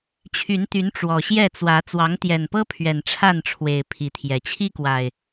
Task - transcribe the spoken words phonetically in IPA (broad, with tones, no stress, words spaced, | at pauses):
t͡ɕʰy˨˦nt̪y˨˦n ʈ͡ʂwɔ˨˩ɕjɛ˥˨t͡swä˨˦ t͡swɑ˨˦ŋt̪jɛ˨˩npɤ˦pʰɥɛ˨˩n ʈ͡ʂʰa˥˨nʈ͡ʂʰwe˨˩ɪ̯ pʰi˨˦t̪ʰjɛ˨˦ t͡ɕʰi˦kwa˨˩ɪ̯